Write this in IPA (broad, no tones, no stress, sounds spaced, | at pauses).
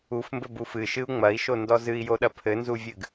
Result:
u f m b ɘ b u f ɨ ʃ ɨ u̯ ŋ͡m ɐ i̯ ʃ o n d ɔ z ɨ i̯ j o ɗ ɐ pʰ ɘ n z u vʲ ɨ ɡ